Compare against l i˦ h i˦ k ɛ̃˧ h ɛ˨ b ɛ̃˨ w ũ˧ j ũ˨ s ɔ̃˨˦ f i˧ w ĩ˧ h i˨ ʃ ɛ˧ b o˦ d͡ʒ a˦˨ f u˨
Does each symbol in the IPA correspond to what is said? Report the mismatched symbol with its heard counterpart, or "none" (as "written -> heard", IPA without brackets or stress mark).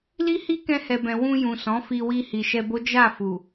ĩ˧ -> i˧